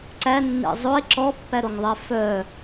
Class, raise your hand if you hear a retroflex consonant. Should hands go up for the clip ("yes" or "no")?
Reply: no